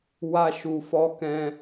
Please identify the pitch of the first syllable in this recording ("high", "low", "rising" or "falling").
high